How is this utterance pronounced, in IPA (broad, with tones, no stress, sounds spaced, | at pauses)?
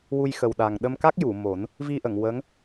w u˧ j x ə˨˩ w ɗ a˨˩ ŋ ɗ ə˧ m k a˦˥ k̚ j u˨˩˨ m o˨˩˦ n | v i˧ ʔ ə˨˩˨ ŋ w ə˧˥ ŋ